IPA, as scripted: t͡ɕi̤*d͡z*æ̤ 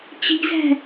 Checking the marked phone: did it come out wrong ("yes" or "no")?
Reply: yes